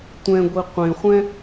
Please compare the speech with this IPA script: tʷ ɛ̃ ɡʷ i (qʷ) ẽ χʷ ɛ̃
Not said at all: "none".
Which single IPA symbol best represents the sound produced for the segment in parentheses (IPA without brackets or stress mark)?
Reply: qʷ